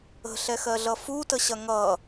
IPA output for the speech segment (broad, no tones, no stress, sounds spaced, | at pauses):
ə̤ ɬ ɛ x ɜ ɮ ʌ f u t ə ɕ ɐ ŋ ʌ